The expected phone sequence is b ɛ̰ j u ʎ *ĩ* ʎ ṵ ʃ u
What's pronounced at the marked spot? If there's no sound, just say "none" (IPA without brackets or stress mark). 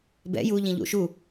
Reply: ĩ